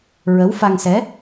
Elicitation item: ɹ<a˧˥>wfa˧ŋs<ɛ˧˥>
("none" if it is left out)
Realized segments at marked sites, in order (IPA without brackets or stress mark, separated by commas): ə˧˥, ɛ˧˥